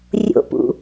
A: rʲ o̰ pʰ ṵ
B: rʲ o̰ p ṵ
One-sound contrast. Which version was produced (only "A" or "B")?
B